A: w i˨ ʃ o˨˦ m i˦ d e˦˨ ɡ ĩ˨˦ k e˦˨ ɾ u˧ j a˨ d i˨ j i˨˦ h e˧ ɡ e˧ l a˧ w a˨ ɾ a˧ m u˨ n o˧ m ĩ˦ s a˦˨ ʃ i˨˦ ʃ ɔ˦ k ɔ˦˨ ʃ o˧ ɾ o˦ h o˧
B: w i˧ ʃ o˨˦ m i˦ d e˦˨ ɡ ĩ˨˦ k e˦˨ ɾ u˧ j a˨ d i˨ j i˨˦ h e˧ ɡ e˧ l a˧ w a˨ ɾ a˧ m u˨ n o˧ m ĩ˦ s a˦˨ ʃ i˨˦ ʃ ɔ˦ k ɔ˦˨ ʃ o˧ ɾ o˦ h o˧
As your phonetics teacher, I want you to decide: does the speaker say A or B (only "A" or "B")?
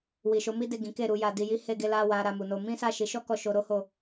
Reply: A